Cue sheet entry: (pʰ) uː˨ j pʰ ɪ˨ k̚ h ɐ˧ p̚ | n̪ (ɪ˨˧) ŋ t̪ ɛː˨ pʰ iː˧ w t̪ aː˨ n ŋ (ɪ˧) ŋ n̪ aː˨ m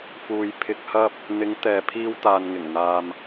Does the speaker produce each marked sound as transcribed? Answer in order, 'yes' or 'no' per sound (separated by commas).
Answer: no, yes, no